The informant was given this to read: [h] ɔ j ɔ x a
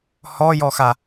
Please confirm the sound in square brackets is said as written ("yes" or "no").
yes